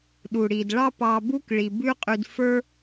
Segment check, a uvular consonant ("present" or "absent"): present